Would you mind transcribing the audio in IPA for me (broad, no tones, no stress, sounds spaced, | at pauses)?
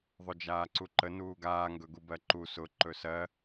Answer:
ðˤ ɵ d͡ʒ aː ǀ u ǃ ə n uː ɡ aː ŋ ɡ ɵ ɡ u b ɜ ǃ u s ʊ ǃ ɵ s ɜ